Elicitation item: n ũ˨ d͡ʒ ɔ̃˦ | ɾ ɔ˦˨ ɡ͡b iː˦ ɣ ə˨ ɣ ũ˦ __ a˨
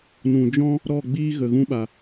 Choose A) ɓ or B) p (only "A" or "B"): A